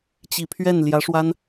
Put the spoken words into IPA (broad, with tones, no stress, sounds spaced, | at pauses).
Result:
t͡ɕ i˨˩ pʰ ɥ ɛ˥˩ n l j ä˧˥ ʂ w a˥ n